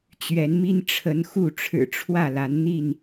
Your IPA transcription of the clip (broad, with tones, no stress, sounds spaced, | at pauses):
t͡ɕ ɥ ɛ˨˦ n m i˦ n ʈ͡ʂʰ ə˨˦ n x u˥˨ ʈ͡ʂʰ ɻ̩˨˩ ʈ͡ʂʰ w ä˥˨ l a˨˦ n n̪ i˥˨ n